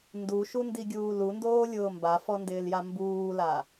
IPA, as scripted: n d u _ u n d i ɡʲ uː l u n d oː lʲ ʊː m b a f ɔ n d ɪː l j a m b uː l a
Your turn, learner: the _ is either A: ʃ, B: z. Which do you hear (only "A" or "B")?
A